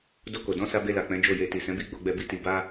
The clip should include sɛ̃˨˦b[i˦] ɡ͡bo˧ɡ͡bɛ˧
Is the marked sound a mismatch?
no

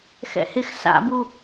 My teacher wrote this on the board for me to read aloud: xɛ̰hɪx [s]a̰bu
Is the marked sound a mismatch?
no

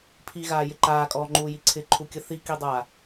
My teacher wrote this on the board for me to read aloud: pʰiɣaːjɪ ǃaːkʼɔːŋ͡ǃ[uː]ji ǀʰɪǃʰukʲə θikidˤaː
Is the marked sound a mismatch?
no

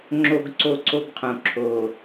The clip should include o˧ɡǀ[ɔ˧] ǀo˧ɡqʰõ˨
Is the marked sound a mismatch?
yes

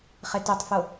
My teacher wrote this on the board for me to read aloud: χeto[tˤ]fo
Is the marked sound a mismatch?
no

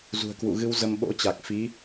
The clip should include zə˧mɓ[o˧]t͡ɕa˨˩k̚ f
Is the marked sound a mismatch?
yes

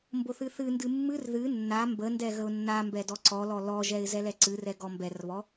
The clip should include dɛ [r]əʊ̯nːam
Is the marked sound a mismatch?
yes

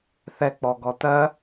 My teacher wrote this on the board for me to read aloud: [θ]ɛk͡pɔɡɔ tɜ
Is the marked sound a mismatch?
no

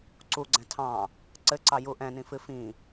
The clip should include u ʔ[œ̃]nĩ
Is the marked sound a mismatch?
yes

